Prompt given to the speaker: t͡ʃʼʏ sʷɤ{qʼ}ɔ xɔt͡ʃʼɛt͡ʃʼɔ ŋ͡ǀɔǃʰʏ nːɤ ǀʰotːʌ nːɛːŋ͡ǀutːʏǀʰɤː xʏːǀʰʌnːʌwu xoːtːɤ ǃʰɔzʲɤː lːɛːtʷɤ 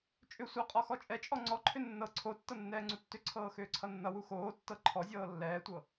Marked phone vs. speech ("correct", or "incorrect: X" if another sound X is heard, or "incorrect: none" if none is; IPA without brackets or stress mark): correct